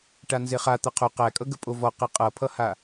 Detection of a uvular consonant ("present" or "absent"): present